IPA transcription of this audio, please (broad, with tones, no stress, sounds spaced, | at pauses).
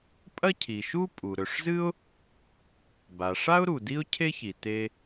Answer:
pʼ ɐ˥ cʰ i˩ ʃ u˥ pʼ u˩ ɾ ɵ˩ ʂ z ɨ˥ ʊ̯ | b a˩ ʂ a˥ ʊ̯ ɾ u˩ d i˥ ʊ̯ cʰ e˥ ç i˩ t e˥